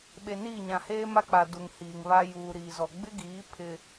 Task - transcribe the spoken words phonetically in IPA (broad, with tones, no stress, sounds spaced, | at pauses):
ɓ e˨ n iː˦˨ ɲ ã˨ h eː˦ m a˦ k͡p a˨ d u˨ ŋ h iː˨ ŋ β a˦ j uː˨ ɾ iː˨ z ɔ˨ ɡ͡b ɪ˦ ɡ iː˨˦ pʰ ɪ˦